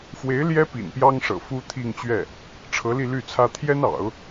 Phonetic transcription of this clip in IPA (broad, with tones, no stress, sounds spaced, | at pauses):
f w e˧˥ ɪ̯ l j ɛ˥ p ḭ˨˩ n p j ɑ˥ ŋ ʂ ɤ̰˨˩ f u˥ t̪ʰ i˥˧ ŋ t͡ɕ ɥ ɛ˥˩ | ʈ͡ʂʰ ɤ˧˥ l i˥˧ l y˥˩ t͡sʰ ä˥ t̪ʰ j ɛ˥ n ɑ̰˨˩˦ ʊ̯